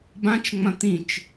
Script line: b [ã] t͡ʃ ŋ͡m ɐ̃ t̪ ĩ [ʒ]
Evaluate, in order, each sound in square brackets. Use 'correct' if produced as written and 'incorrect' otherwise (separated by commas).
correct, incorrect